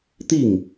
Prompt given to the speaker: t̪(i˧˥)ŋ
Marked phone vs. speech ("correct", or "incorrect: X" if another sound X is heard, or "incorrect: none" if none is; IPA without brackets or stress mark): incorrect: i˥˩